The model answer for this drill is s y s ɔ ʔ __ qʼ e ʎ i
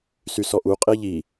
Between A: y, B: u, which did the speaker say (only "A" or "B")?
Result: B